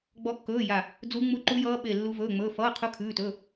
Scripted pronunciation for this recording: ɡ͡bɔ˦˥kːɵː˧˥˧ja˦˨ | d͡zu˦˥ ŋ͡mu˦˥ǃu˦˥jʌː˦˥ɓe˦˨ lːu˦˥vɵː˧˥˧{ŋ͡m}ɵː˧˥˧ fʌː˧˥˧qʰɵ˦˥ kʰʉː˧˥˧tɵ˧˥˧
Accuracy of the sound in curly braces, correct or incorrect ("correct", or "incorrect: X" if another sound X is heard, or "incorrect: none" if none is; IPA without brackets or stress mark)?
correct